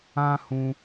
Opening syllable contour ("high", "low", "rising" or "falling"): high